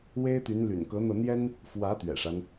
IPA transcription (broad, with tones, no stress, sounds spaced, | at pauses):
w e˥ ɪ̯ t̪ y˧˥ n l y̰˨˩ n k ɤ˧˥ n̪ ɤ˧ n̪ j ɛ˥ n | f w ä˧˥ t̪ ɥ ɛ̰˨˩ ʂ a˦ n